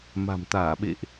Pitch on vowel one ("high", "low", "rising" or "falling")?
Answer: low